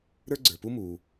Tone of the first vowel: high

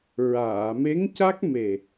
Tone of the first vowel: low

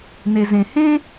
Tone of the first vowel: low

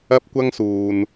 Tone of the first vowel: high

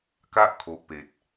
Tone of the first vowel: high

